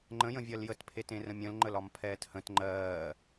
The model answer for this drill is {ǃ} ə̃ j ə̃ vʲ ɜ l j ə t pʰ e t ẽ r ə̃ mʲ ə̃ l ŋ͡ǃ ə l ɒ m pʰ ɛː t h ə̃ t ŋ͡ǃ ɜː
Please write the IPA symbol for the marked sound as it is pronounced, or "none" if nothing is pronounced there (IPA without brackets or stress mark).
ŋ͡ǃ